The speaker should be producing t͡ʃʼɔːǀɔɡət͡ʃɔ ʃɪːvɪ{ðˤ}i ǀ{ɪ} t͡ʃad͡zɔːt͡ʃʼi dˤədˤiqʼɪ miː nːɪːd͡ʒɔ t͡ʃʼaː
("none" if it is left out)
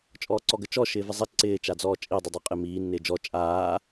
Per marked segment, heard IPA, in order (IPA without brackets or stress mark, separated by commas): zˤ, ɪː